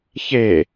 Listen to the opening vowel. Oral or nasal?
oral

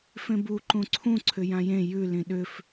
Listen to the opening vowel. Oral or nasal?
nasal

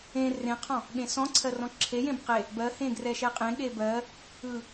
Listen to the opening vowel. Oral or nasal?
nasal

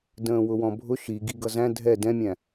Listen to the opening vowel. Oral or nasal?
nasal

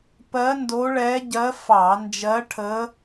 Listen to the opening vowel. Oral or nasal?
oral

